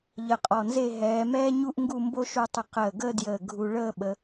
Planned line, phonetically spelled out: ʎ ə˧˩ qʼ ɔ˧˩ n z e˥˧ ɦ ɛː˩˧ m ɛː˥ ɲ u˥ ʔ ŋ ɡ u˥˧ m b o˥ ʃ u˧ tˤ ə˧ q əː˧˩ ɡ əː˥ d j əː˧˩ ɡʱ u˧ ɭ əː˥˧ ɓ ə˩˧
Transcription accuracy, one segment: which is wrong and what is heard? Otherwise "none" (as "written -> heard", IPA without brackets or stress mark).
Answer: none